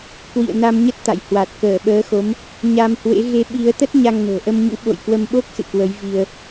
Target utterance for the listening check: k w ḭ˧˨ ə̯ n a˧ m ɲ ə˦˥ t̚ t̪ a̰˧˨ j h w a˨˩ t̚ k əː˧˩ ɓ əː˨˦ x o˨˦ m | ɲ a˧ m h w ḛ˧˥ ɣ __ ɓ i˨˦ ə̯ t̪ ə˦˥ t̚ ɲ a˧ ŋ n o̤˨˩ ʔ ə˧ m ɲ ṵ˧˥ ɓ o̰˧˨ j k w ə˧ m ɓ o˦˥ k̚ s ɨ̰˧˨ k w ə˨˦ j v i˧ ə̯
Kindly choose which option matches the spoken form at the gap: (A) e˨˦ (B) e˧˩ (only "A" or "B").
A